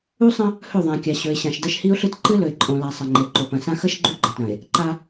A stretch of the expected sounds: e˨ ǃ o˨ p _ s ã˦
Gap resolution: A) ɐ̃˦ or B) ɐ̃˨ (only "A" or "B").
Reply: B